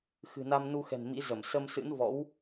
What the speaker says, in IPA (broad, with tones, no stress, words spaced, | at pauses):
xɨ̤˨˩na˧mnu˧xɛ̤˨˩n mḭ˧˥zə˧˩m sə˧msɨ̰˧˥n vɔ̰˧˥w